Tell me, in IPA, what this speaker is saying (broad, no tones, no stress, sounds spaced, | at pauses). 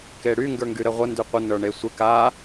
k e ɽ y ŋ ɡ ə˞ ŋ ɡ y ɾ ə ʁʷ ə n d y qʷ ə n ə˞ ɳ e sʷ ɪ k a